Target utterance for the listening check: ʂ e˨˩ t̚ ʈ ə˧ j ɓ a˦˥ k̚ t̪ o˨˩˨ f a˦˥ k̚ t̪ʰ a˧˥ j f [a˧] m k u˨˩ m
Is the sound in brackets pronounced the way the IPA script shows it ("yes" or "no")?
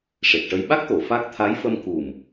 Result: no